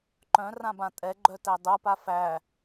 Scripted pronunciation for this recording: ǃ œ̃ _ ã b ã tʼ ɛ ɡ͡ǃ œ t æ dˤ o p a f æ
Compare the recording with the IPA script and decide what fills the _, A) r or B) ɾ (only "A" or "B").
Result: A